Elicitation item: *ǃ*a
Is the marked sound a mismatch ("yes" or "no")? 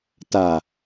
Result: yes